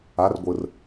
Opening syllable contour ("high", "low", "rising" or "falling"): rising